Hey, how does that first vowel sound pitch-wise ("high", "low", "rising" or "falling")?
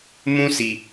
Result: high